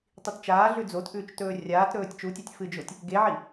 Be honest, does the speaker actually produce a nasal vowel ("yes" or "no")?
no